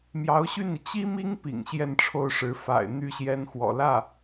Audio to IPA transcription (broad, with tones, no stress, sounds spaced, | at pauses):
m j ɑ˧˥ ʊ̯ ɕ y˥˩ n i˩ t͡ɕ i˥ m i˥ ŋ p ḭ˨˩ ŋ ɕ j ɛ˥˧ n ʈ͡ʂʰ o˥˩ ʊ̯ ʂ ɻ̩˧˥ f a̰˨˩ ɪ̯ n̪ y˥˩ ɕ j ɛ˧˥ n x w ɔ̰˨˩ l ä˥˩